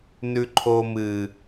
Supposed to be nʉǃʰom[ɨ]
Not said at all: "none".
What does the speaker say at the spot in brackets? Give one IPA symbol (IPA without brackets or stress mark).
ɨ